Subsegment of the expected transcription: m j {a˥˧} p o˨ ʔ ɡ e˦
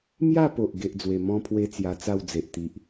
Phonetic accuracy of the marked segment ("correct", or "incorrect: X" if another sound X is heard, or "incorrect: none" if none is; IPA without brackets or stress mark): correct